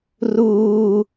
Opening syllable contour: high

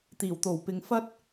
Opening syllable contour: low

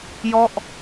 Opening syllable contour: falling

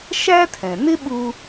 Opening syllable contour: high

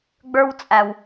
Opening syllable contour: high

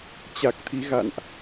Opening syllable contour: low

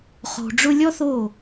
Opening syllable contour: low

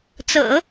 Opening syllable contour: low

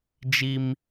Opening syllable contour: low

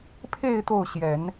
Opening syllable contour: falling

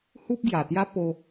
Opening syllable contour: high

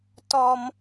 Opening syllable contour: high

